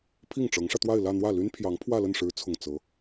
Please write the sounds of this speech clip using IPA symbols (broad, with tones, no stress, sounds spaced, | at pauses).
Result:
pʰ i˥˩ ŋ ʈ͡ʂ ɤ˧˥ ŋ ʂ ä˧ t̪ w a˥˧ ɪ̯ l ä˥˧ n̪ w ä˥˩ l y˥ n pʰ j ɑ˧˥ ŋ pʰ w ä˥˧ l ə˥˩ n ʂ ɻ̩˧˥ t͡sʰ ʊ˨˩ ŋ t͡s ɤ˧˥